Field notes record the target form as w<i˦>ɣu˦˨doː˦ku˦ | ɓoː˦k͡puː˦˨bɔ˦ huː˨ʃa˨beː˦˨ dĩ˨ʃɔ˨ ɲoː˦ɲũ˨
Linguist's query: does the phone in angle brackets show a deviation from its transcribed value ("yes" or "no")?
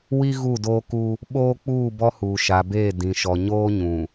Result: no